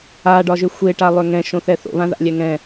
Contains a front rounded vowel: yes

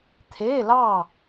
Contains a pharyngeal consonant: no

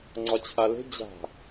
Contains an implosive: no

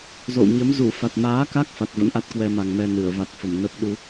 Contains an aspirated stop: no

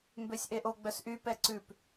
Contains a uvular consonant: no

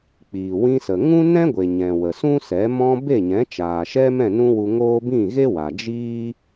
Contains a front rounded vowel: no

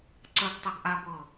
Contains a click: yes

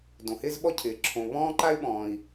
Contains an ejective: no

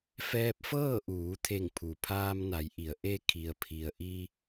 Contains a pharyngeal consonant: no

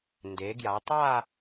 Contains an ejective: no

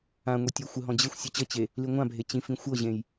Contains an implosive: no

